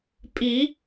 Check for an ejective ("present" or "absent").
present